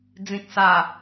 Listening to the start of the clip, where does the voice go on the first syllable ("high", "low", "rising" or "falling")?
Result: low